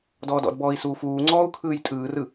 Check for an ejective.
present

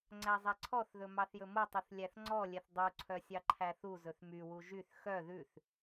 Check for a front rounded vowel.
present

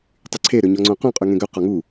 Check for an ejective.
present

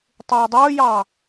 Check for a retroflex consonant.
absent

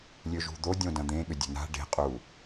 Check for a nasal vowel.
present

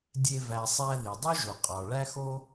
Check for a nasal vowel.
absent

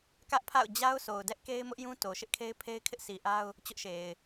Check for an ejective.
absent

